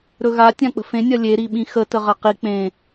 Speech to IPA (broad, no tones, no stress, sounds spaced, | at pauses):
ɾ ɵ ɣ a tʲ ã k͡p ə̤ f ẽ nʲ ɐ lʲ e ɾ i ɓ ĩ x ə t ə ʁ ɐ q i k͡p ẽ